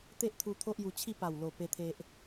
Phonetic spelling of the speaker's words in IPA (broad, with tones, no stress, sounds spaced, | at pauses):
t̪ e˦ ʔ t̪ʰ u˧ t̪ʰ o˦ ʔ j u˧ t͡ɕʰ i˥˧ p a˨˩ w l o˨˩ p e˦ t̪ʰ e˦ ʔ